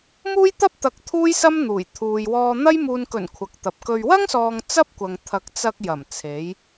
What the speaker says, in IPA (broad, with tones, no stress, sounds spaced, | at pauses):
m uː˥ j t̪ ɐ˥ p̚ t̪ ɐ˨˥ k̚ t̪ʰ uː˥ j s ɐ˥ m n̪ uː˨˩ j t̪ʰ uː˨ j w ɔː˧ n̪ ɐ˥ j m uː˨ n k ɵ˨˩ n kʷʰ ɐ˨ k̚ t̪ ɐ˨ p̚ k ɵ˧ ɥ w ɐ˥ ŋ s ɔː˨ ŋ t͡s ɐ˥ p̚ kʷ ɐ˨ ŋ t̪ʰ ɐ˨˥ k̚ t͡s ɐ˧ k̚ j ɐ˨˩ m t͡sʰ e˨˧ j